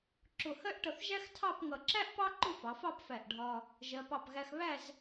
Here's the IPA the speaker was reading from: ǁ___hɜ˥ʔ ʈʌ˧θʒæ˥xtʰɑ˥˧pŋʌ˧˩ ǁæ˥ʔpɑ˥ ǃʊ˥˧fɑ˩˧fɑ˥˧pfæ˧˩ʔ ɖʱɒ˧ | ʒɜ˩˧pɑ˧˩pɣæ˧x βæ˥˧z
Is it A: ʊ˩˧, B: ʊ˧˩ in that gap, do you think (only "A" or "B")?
B